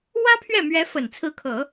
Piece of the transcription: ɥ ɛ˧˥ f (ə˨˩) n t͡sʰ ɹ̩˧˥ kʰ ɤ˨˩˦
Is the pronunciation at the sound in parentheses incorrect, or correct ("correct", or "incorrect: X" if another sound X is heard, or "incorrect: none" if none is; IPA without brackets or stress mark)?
correct